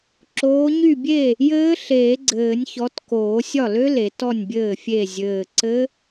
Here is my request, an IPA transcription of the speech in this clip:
ǁ oː˨˦ ɲ y˥˩ bʲ e˥˩ | j ɘː˦˥ ɬ eː˨˩˦ ɡ͡ǀ ɘː˨˩˦ nʲ ç ɔ˨˦ t k oː˨˩˦ sʲ ɒ˥˩ l ø˦˥ l e˨˩˦ t ɔ˥˩ nʲ bʲ ɘː˥˩ fʲ e˥˩ zʲ ɘː˧˩ ǀ ɘ˦˥

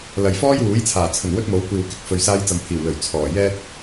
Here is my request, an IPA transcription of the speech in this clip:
l ɐ˨ j f ɔː˥ j w uː˨˥ j t͡sʰ aː˨˩ t͡sʰ ɵ˨˩ n w ɵ˥ t̚ m o˨˥ w kʷ iː˨ w k ɪ˨˥ k̚ f ɵ˨ ɥ s aː˧ j t͡s ɐ˨ m pʰ iː˨˩ w l ɵ˨˩ ɥ t͡sʰ ɔː˨˩ j ɛː˥ t̚

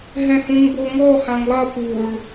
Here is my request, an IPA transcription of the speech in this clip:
ɦ ɛ̃ h ũ ŋ b o ŋ ɔ h ã ŋ lˠ ɐ p u ɭ

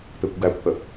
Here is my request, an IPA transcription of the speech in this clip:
p e kʷ ɡ æ kʷ h ə

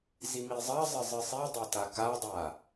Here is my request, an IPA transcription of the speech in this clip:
z i m i zˤ ɐ zˤ ɘ zˤ ɨ sˤ i dˤ a t a k a dˤ a

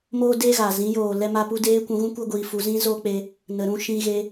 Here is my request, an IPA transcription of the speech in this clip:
m oː˦ d eː˦ ɣ a˨ z ĩ˨˦ j oː˨ l ɛ˧ m a˧ p u˧ d eː˦ kʷ ũ˧ ɣ ũ˦ kʷ ə˦ ɡʷ iː˧ f u˧ z ĩ˦ z o˦ k͡p e˧ | n ə˨ ɾ ũ˧ ʃ ĩ˧ ɣ e˧

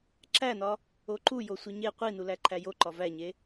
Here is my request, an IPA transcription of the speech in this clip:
ǁ æ n ɒ | o ǃ u j o sʷ i ɲ e qʷ i n u l æ ǃʰ æ j o ǃ ɒ v æ ɲ e

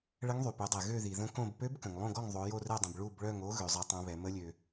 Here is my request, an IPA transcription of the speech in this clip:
ɭ ə˧˥ ŋ ðˤ y˩ p ø˩˧ dˤ ɛ˩ ɣ ø˦˨ ð i˩ ð ə̃˧˥ k õ˦˨ b p ø˧˥ b k ə̃˩ ŋ lˠ õ˦˨ ɡ ɔ˦˨ ŋ ðˤ o˩˧ j o˦˨ r ɛ˦˨ dˤ ə̃˩ b ɭ u˦˨ b ɭ œ˦˨ ŋ o˧˥ ɣ ø˩˧ zˤ ɛ˧˥ tˤ õ˧˥ β ɛ˩˧ m ə˧˥ lʲ ø˩

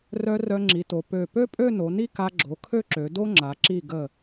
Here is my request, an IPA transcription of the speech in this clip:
r œ˧ r œ˧ ŋ͡ǁ i˩˧ t o˩˧ p ø˧˩ p ø˥ pʼ ø˥˧ n o˩˧ n i˥˧ k a˧ ɡ͡ǁ o˩˧ kʰ ø˥˧ ǁ ø˩˧ d o˥ ŋ͡ǁ a˩˧ ǁ i˧˩ ɡ ə˧˩

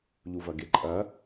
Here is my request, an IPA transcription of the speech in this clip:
ʎ u v ɐ ɡ e ǃʼ ɐ

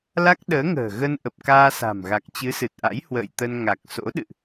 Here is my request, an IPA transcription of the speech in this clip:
l a˦˥ k̚ ɗ əː˨˦ ŋ ə̤ː˨˩ ɣ ə˧ n ʔ ə˨˩ p̚ k aː˧ s a̤˨˩ m ɣ a˨˩ k̚ t͡ɕ ɨ˨˦ s ɨ˨˩ t̚ ʔ a̰˧˥ j h w ə̰ː˧˨ j t̪ ə˧ n ŋ a˨˩ k̚ s o̰˧˥ ɗ ɨ̰˧˨ ʔ

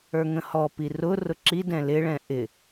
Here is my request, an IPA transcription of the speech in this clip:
ə˞ ŋ ə̃ h ɔ p i r ʊ r ʊ ǁ i d ɛ̃ l ɪ ɭ ɛ̃ ʔ ɪ

